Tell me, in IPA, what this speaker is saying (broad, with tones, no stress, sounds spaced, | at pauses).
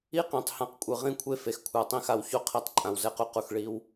i˦ q ĩ˨ tˤ h ã˨ q kʷʼ ɯ˨ ʁ ĩ˦ kʷʰ e˦ f e˨ x kʷʰ a˨ tˤ ĩ˦˨ x a˨ w ç o˦˨ qʰ i˨˦ tˤ ǃʼ ã˨ w z ɛ˨˦ q u˦ q u˨ x ɭ i˦ w